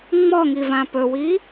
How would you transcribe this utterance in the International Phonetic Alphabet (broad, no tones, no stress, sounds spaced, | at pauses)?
ŋ͡m ɔ ŋ i v ã p ɵ w i